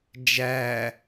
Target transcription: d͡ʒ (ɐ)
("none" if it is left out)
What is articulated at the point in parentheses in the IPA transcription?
æ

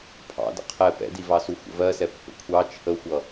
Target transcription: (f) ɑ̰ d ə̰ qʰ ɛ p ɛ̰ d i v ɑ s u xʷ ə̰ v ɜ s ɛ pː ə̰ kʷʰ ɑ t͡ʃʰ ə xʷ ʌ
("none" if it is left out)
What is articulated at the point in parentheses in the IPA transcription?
pʰ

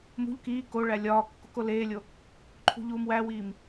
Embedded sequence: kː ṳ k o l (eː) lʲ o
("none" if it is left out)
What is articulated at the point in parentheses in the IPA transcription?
eː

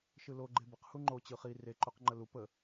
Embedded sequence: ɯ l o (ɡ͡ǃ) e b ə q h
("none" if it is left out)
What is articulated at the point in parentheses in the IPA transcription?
ɡ͡ǃ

